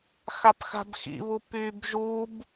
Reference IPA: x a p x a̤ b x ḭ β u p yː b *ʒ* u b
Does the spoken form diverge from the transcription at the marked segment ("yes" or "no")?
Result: no